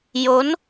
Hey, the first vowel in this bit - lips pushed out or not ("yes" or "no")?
yes